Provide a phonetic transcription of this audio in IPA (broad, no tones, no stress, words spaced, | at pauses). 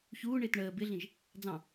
çuːɳɪːt ɳəː bɪɮĩʒ | d͡zɑ̃